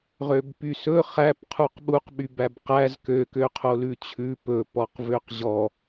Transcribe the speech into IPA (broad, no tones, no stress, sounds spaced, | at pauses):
ʁ ø b p y s ɵ χ æ p qʰ u q ɓ u q ɓ y b æ b q æ z k ø k ø qʰ o l ʉ t͡ɕʰ ʉ p ɵ p ɔ q v ø q ʑ ɔ